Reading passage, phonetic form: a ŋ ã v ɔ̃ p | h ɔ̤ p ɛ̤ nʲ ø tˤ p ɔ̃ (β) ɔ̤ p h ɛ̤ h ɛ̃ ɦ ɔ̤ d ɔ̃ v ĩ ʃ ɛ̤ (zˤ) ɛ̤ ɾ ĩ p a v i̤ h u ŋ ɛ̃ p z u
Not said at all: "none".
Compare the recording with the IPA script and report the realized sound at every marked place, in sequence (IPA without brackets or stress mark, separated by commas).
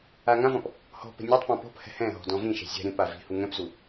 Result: p, zʲ